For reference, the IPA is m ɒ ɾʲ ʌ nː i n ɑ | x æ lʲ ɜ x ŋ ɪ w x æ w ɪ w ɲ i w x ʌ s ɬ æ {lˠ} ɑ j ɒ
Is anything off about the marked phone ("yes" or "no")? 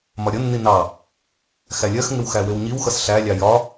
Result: yes